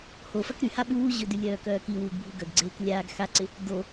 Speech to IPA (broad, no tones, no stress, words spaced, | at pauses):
hofɐk ɾyha ɓuː ʑʏdylʲœːkœː kiwuːɡbʱu ɡœɡɡ͡ǀeːk lʲaːɡ xaǀɪ | do